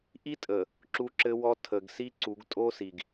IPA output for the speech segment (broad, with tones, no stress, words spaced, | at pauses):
ʔi˦tʼə˨ | ǁu˦ǁɘ˦wɔ˦ tʰə˨ɡ si˦ǀu˨˦ɡtʼo˦si˨ɡ